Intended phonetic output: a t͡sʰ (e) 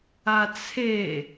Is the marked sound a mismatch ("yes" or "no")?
no